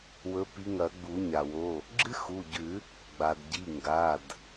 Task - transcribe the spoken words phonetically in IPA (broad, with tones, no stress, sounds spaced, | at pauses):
w ɵ˨˦ p i˨˦ ŋ ɐ˨˩˦ ɡ͡b u˨˩˦ ɲ a˩ w o˩˧˩ | ɡ͡ǁ ɨ˥ x u˩˧˩ ɟ ʉ˨˩˦ | ɡ͡b a˩ d ɟ i˩˧˩ ŋ ɡ a˩˧˩ d